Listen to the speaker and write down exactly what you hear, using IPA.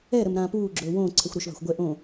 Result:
ɛ ɾ ə m ɾ ãː p uː ɡ͡ǁ ɵː w õː ǀʰ ɛ xʷ ɾ ɵ ʃ v a̤ xʷ ɡʷ ɛ ʔ õ

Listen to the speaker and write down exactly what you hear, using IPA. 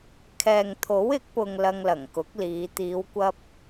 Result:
kʰ ɛː˨ ŋ t̪ʰ o˨˥ w ɪ˨˥ k̚ p ʊ˨ ŋ l ɐ˧ ŋ l ɐ˨˩ ŋ k ʊ˨˥ k̚ l iː˨˧ t̪ iː˨˧ w kʷ ɐ˧ p̚

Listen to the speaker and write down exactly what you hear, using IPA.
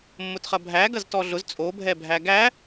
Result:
mː ʊ t χ ɐ bʱ æ ɡ ɐ z t ɔ ɮ ʊ z t͡sʼ o bʱ ɛ bʱ æ ɡ æ

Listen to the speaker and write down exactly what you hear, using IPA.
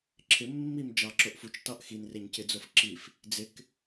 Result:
ǁʰ ɪ mː i m d͡ʒ ɑ ǁ o ʔ f u t͡ʃ t ɑ ʔ x i n r e ɲ c ɪ d͡z o f ǁ i f | d͡z ɪ k

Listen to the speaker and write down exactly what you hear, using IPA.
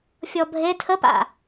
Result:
fʲ ɔ bʱ e tʰ ə p a̰

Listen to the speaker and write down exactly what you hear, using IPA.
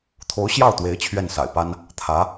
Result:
t̪ʰ o˧˥ ʊ̯ ɕ j ɑ˥˩ ʊ̯ t̪ w e˧˥ ɪ̯ t͡ɕʰ ɥ ɛ˥˩ n s a̰˨˩ ɪ̯ p a˥ n | t̪ʰ ä˧˥

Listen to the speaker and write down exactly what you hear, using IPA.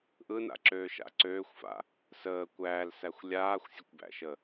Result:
ʔ ɯ n a̰ ǁ øː ʃ a̰ ǀ øː xʷ f a̰ | s əː kʷ æː l s æ xʷ lʲ aː xʷ sʲ ə kʷ b æ̰ ʃ ə

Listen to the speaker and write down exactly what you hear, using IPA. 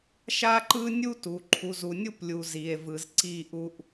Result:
ʃ a˦ ǃ ɯ˦ nʲ u˦ t u˨ ǃʰ u˨ z u˨ nʲ u˦ p lʲ u˨ z i˨ e̯ v ɯ˨ z ǀ i˦˨ ʔ u˦ ʔ

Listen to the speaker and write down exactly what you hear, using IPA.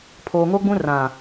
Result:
pʰ oː˨ ŋ o˦ ɡ͡b ũ˦ r ã˨

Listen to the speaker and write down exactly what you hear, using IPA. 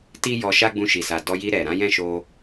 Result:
t i˦ j ɔ˧ ʃ a˦ ɡ͡b ũ˧ ʃ i˨ s a˨ d ɔ˧ j i˧ ɾ ɛ˨ ɾ ã˨˦ j ɛ̃˦˨ ʃ o˧

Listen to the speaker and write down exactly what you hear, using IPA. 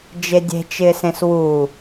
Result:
d͡ʒ e dʲ e̤ t͡ʃ ɪː s ẽ s w u

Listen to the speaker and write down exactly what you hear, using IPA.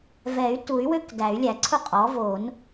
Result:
v ɛ˨˩˦ y̯ t u˨˩˦ y̯ w ø˥˧ k d æ˨˩˦ y̯ lʲ æ˨˩˦ ǀʰ ʊ˥˧ qʼ ɔ˩˥ v o˨˩˦ n

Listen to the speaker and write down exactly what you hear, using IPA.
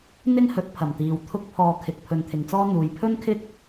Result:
n̪ ɪ˥ ŋ h ɵ˨˥ t̚ pʰ ɐ˨˩ m t̪ iː˨ w t̪ʰ ʊ˥ k̚ pʰ ɔː˧ kʰ ɪ˨ k̚ pʰ ɵ˨˧ n t̪ʰ ɪ˨ ŋ t͡s ɔː˥ n̪ uː˨ j pʰ ɵ˥ n kʰ ɪ˥ k̚

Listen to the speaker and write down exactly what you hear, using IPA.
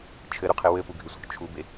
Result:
t͡ʃʰ ɘ ɾ u qʰ ɪ w ɘ p u ɡʱ ɪ sʷ ɪ k t͡ʃʰ u b e

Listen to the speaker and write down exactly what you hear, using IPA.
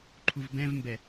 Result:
ǃʰ u v b ɛ̃ v m b ɛ

